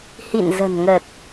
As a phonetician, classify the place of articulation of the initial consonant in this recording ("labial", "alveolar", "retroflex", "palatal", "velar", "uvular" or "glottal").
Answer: glottal